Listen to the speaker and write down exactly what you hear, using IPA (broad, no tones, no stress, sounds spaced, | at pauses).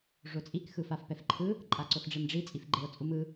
ʐ o t͡sʼ i k x ɯ f a f p ɛ f ǃʰ ɯ | ǃʼ a ǀ o x ɖ͡ʐ e m ɖ͡ʐ i t͡sʼ i f ɡ͡ǃ e o̯ t͡sʼ u m ɯ